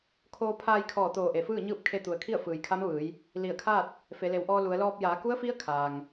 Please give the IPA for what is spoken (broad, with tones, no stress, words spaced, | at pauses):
kʰoː˧ pʰaː˧jkʰɔː˧˩ t̪oː˧˩ʔe˩fɯː˥˨ɲɯː˥˨p̚ kʰe˧t̪u˩ə̯kʰi˥˨ə̯ fɯː˩jkʰa˧˥mʋɯː˩˧j | li˧˩ə̯kʰaː˥˨t̚ | fe˩˧le˩˧wʔɔː˧ lu˩˧ə̯lɔː˧p̚ jaː˩˧ku˧˥ə̯fi˧˥ə̯ kʰaː˩ŋ